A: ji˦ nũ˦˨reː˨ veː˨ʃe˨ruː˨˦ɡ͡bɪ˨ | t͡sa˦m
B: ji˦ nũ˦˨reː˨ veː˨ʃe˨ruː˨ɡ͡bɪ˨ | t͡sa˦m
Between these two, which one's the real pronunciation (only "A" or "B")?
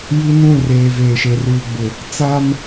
B